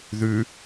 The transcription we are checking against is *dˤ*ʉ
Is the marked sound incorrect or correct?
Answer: incorrect